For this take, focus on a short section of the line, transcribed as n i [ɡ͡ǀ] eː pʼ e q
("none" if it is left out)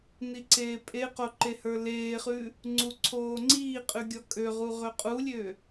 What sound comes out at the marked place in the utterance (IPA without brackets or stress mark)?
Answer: ǀ